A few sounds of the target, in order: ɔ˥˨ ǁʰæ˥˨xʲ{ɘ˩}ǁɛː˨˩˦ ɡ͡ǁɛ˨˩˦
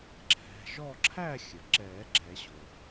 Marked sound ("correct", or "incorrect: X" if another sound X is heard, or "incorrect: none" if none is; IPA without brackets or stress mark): correct